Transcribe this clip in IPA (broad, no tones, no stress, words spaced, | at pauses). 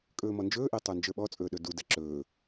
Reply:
kʼɵːmɔnd͡ʒɵːʔe tˤə˞nd͡ʒə˞ɓɔt͡sʼɵː ɗɵdudɛ ǁɵː